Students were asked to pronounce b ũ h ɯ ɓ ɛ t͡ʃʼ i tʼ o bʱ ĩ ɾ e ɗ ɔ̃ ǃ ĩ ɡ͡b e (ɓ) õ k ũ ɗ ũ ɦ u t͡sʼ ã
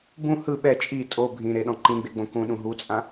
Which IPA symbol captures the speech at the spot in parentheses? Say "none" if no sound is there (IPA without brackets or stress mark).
ɡ͡b